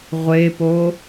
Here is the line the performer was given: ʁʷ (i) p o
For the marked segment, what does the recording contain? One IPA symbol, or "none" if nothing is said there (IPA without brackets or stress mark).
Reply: e